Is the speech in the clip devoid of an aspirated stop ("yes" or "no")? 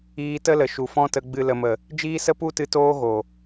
yes